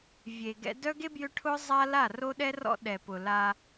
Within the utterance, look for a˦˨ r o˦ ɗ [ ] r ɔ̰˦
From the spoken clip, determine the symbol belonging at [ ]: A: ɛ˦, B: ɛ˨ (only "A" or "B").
A